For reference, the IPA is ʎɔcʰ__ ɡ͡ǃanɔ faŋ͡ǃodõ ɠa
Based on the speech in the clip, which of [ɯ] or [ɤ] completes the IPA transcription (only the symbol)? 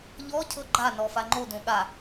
ɤ